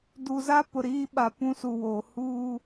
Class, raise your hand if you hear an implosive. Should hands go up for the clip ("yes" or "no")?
yes